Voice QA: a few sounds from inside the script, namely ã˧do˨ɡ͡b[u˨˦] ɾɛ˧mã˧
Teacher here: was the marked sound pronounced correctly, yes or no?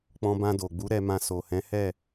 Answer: yes